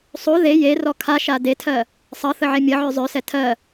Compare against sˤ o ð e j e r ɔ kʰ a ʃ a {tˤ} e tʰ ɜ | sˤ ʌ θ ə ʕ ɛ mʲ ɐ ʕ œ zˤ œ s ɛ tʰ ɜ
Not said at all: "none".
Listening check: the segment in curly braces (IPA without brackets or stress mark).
d